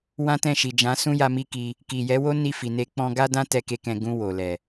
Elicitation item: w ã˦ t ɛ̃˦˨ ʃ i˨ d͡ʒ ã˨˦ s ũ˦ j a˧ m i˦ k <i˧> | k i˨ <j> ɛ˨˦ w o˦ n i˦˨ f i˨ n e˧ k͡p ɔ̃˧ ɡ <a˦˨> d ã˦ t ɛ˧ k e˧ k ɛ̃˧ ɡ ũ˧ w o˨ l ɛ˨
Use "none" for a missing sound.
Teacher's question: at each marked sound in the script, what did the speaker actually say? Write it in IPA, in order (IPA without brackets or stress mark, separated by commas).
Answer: i˧, j, a˦